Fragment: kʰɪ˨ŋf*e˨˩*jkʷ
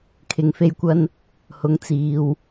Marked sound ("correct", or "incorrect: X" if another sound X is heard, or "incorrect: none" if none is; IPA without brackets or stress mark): incorrect: e˧